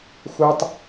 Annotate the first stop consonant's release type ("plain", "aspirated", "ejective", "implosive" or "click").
plain